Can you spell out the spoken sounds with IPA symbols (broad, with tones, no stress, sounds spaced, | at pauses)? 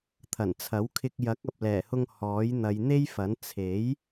t̪ʰ ɐ˨˩ n t͡sʰ ɐ˨˥ w kʰ ɪ˧ k̚ j ɐ˨˥ k̚ ɐ˨ p̚ l ɛː˨˩ h ʊ˧ ŋ h ɔː˨˥ j n̪ ɐ˨˧ j n̪ e˥ j f ɐ˨˥ n t͡sʰ e˨˥ j